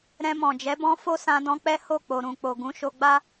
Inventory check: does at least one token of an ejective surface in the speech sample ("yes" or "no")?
no